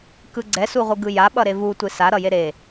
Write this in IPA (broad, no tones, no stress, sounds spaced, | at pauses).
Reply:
k ɯ ɡ͡ǀ ɛ s u ʁʷ ɯ ɡ ɯ j a ɓ ʌ ɾ e v u tʷ e s a ɾ ʌ j e ɾ e